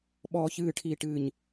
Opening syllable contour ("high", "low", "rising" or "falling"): low